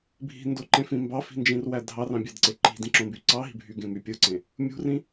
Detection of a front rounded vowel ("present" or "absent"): present